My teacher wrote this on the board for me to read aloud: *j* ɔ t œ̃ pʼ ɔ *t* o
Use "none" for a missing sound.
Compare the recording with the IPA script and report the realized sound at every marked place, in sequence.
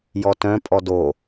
j, d

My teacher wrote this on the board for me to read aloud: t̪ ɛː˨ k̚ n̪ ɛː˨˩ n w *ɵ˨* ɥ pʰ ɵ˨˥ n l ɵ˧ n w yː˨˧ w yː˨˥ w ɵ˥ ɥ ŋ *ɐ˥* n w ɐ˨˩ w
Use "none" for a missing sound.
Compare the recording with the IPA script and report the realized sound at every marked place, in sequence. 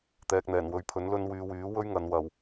ɵ˨˥, ɐ˨

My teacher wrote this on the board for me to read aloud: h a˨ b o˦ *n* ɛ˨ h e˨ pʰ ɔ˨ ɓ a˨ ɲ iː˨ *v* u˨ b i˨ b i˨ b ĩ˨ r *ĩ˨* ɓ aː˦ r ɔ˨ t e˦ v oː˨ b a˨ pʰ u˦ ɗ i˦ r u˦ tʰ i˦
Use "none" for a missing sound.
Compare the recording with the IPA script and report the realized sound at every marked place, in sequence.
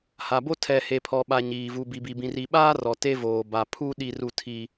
tʰ, v, i˨

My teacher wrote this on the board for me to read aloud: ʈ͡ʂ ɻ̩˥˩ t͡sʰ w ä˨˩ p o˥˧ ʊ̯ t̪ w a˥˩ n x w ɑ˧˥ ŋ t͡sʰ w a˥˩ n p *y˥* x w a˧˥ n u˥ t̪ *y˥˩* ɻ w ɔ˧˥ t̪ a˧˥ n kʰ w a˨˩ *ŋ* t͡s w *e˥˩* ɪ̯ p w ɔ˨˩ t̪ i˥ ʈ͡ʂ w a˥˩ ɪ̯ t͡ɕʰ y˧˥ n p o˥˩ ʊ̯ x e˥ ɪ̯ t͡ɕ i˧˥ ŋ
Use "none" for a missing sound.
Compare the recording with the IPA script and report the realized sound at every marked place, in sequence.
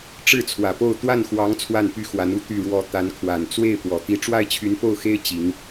y˥, y˥˩, n, e˥˩

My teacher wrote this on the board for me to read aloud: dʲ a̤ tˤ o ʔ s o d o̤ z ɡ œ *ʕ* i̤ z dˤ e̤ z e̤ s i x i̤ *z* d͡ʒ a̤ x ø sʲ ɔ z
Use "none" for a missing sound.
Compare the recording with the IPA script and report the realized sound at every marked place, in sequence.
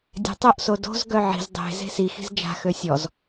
ʕ, z

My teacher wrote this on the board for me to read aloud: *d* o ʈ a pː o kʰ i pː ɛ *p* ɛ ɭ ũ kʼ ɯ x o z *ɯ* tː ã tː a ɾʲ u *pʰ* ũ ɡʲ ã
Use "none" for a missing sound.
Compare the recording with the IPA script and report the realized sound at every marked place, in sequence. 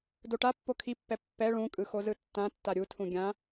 d, pː, ɯ, tʰ

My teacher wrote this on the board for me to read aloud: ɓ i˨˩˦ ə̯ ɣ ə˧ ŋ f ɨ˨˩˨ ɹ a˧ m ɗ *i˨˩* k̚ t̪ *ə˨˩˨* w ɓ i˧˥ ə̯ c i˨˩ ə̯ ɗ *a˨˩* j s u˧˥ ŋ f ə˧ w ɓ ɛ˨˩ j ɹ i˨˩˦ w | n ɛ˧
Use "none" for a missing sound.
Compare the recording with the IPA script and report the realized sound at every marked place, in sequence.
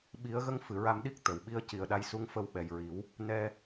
i˦˥, ə˨˩˨, a˧

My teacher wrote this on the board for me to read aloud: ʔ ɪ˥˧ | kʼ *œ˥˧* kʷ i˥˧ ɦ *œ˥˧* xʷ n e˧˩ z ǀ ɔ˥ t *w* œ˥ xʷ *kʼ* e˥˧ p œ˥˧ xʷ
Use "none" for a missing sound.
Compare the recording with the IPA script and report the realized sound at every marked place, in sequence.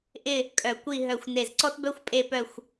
œ˧˩, œ˧˩, b, pʼ

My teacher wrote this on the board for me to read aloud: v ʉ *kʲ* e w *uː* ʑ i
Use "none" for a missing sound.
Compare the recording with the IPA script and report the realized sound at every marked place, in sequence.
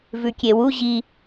kʲ, u

